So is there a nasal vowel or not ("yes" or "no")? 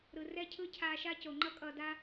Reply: no